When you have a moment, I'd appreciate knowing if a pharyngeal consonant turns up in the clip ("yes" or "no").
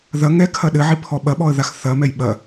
yes